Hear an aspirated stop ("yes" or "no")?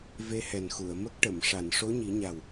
no